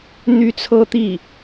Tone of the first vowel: high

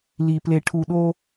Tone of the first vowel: low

